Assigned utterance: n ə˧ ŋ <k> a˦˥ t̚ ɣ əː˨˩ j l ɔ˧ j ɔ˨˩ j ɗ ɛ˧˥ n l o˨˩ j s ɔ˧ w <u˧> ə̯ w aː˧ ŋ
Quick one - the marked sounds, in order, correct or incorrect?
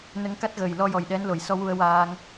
correct, correct

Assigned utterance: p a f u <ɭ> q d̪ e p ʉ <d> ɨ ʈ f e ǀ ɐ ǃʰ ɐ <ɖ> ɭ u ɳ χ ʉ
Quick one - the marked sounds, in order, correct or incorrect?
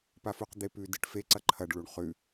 incorrect: none, correct, correct

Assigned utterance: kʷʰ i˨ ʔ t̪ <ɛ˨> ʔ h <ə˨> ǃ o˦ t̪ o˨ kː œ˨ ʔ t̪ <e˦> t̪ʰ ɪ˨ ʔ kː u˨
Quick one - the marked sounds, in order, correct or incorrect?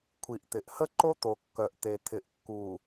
incorrect: ɪ˨, incorrect: ə˦, incorrect: e˨

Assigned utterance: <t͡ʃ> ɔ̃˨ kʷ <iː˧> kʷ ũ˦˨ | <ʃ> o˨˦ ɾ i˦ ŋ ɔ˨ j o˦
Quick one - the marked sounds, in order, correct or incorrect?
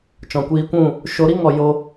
correct, correct, correct

